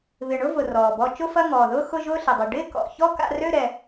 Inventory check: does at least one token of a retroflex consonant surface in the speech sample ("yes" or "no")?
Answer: yes